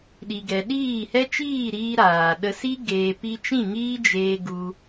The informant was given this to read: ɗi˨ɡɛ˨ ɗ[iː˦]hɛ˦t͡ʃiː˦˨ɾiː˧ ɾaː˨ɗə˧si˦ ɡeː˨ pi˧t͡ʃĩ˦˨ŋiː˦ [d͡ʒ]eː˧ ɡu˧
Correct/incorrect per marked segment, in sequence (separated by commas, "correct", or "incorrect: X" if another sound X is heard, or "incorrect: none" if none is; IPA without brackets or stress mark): incorrect: iː˦˨, correct